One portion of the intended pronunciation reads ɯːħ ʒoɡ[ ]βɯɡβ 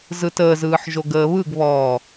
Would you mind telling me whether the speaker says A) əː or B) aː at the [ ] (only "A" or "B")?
A